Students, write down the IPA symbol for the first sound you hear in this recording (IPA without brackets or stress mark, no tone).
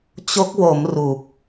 t͡ɕ